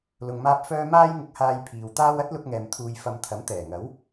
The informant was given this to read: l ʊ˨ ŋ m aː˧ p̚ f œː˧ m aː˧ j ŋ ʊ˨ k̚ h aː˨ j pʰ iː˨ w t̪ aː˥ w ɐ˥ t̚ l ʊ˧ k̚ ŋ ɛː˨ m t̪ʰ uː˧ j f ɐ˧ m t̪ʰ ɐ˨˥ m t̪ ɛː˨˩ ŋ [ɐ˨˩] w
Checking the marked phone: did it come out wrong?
yes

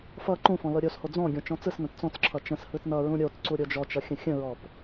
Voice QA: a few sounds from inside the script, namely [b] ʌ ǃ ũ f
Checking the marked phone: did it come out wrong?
yes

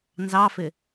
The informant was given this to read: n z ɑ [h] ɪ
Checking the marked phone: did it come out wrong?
yes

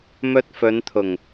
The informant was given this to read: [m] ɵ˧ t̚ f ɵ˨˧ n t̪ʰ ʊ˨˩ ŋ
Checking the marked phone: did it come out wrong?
no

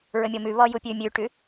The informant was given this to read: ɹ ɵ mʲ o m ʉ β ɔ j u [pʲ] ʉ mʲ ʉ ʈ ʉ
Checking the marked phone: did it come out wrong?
no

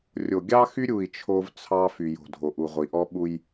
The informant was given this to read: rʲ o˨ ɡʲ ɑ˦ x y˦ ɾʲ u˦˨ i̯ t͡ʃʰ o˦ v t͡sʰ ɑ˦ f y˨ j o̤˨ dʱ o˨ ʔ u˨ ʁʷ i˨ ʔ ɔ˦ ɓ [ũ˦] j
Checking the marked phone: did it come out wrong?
yes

